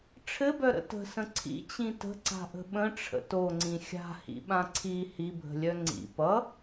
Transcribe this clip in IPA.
ʈ͡ʂʰ ɘ b œ ɾ ə̰ t ə̤ s ə̃ ǀʰ ḭ t͡ɕ ĩ t ə̤ ǀ a̤ ʔ ə̤ ɓ ə̃ ʈ͡ʂʰ ə̰ t o ŋ͡ǀ ĩ xʲ a̤ h ḭ ɓ ã ǀʰ i h i bʱ ə̤ lʲ œ ŋ͡ǀ ḭ p ʌ

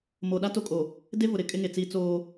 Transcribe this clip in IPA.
m o˨ ɗ a˦ t o˦ kʼ o˨ | d e˦ v ʊ˨ ɾ ɪ˨ kʼ ɪ˦ ŋ e˨ t͡s iː˦ t͡s oː˦

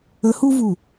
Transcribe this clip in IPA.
ə˧˥ h u˥ v u˧˩

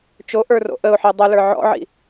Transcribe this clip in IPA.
t͡ʃ o ʔ ə˞ r o̰ ʔ ə ʊ̯ ħ i dˤ ə l ə˞ ʕ ɔ̰ ʕ ḭ

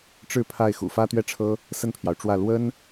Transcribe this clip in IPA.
ʈ͡ʂ ɻ̩˥˧ pʰ a˥˩ ɪ̯ x ṵ˨˩ f ä˥ t̪ ɥ ɛ˥˩ ʈ͡ʂʰ ɤ˥ | s ə˥˩ n pʰ j ɑ˩ ʊ̯ ʈ͡ʂ w ä˥˩ l w ə˥ n

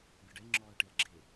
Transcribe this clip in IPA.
bʲ ɔ ɖ ɛ ŋ͡ǁ ɔː ɐ̯ ʈ e ɐ̯ ɡ͡ǁ e

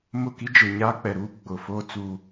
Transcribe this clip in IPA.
m ʊ˦˨ k i˦ d͡ʒ e˨ ɲ aː˦ k͡p ɛ˨ ɾ uː˦ ɡ͡b ʊ˨ f oː˦ t͡s uː˦

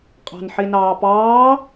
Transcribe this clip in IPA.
qʼ ɑ̤ n ħ i n ɑː p ɑː

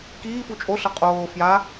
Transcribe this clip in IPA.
k iː f u t͡ʃʼ o ɬ ʌ qʼ oː f j a

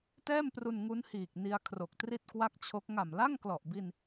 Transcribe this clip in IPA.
t ɛː˥˩ m p r u˧ n ŋ u˦˥ n h iː˨˩ k̚ n i˧ a̯ kʰ r o˨˩ k̚ t r i˥˩ t̚ k w a˥˩ k̚ t͡ɕʰ o˦˥ k̚ ŋ a˨˩ m l a˥˩ ŋ k l ɔ˨˩ ʔ b i˧ n

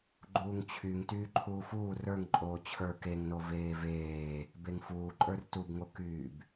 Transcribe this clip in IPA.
ɡ͡ǃ uː ŋ t͡ɕʰ y ŋ t yː ǃʰ uː f uː r ə˞ ŋ ǃʼ oː t͡ɕʰ ə˞ k e ŋ n o v eː v eː | b e ŋ f uː ǃʼ ə˞ r t u b ŋ o k yː b

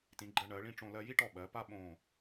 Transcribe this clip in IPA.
t ĩ˩˧ ɡ͡ǃ ɜ˧ ɳ ɜ˩˧ ɭ ĩ˥˧ ʈ͡ʂ õ˧ l ɜ˧ j i˥ ʈ ɔ˧˩ ɓ ɜ˩˧ p a˥ ɓ õ˧˩

